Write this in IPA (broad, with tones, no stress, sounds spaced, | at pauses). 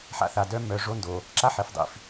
ħ a̰˦ θ a˨ d œ˦ m œ˨ ʐ o˦ n d o˨ | ǁ a˦ ħ e˨ f dˤ ḭ˨ f